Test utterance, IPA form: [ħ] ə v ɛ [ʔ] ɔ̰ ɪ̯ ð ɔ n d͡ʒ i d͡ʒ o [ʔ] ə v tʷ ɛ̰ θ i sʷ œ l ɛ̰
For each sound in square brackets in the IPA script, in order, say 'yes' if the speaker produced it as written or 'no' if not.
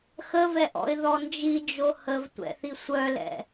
no, yes, no

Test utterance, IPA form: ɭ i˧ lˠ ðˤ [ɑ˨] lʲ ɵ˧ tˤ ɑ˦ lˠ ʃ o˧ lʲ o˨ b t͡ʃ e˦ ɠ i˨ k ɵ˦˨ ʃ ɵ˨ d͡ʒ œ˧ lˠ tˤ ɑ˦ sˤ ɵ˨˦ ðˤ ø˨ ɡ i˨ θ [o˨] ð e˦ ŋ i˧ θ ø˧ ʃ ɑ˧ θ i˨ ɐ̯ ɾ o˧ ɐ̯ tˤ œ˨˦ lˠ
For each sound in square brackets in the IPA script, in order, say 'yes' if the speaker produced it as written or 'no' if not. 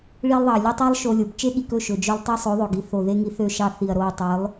yes, yes

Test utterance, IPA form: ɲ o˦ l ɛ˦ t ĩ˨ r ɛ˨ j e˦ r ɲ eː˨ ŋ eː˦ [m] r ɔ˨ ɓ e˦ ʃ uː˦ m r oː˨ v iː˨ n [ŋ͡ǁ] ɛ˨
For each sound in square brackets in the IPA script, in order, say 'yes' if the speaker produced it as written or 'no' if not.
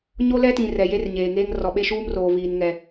no, no

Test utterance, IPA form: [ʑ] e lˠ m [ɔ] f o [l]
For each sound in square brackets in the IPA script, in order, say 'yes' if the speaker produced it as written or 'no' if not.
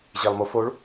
yes, no, no

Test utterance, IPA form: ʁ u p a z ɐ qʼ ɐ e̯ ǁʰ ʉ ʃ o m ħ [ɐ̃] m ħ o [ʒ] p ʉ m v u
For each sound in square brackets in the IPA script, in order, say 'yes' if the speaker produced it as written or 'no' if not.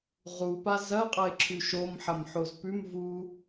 no, no

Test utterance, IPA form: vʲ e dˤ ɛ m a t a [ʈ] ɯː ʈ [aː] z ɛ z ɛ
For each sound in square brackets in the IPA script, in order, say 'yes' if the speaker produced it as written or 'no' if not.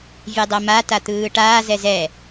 no, yes

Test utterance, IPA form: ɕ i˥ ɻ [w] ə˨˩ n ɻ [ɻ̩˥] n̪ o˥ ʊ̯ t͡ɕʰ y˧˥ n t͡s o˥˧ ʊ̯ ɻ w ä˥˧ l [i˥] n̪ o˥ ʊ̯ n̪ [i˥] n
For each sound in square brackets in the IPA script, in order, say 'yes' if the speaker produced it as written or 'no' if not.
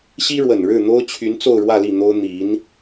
yes, no, no, no

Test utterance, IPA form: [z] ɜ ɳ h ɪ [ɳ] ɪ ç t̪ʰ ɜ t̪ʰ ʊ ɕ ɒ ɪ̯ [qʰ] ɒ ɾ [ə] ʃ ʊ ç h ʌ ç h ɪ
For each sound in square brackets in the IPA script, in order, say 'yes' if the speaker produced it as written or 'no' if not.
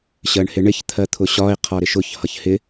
no, yes, yes, no

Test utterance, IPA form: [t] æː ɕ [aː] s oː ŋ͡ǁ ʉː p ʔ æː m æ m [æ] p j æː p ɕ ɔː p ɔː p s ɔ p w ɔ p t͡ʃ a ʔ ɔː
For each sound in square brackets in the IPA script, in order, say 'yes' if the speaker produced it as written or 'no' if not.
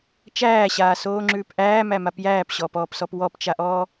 no, yes, no

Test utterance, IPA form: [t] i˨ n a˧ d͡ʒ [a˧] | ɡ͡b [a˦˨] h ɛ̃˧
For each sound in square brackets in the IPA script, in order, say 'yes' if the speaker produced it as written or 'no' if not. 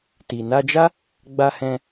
yes, no, no

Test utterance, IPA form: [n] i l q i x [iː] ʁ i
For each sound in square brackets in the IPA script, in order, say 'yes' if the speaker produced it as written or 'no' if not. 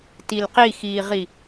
no, yes

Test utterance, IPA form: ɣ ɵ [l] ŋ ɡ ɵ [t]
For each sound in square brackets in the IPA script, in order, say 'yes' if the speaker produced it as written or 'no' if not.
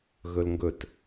yes, yes

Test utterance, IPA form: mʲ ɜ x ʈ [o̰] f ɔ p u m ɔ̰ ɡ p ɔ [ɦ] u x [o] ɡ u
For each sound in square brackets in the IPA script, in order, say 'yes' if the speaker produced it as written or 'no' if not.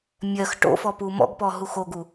yes, yes, yes

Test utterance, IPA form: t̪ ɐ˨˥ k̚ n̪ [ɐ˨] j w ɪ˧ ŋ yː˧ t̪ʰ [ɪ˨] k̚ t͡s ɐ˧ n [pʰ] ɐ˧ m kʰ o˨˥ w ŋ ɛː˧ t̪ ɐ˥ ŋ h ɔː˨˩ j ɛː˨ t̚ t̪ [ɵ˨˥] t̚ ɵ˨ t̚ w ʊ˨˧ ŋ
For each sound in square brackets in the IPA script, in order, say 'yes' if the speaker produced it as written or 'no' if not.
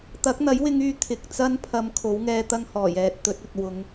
no, yes, yes, yes

